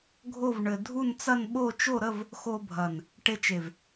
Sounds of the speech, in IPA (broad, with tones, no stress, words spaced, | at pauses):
ɡʱo˥˧vɳɘ˧ dʱu˥˧nt͡sɐ˥˧nɓo˥˧ t͡ʃo˥˧ɾə˥˧v | xo˧bʱɐ˨˩n | ʈe˧t͡ʃe˨˩v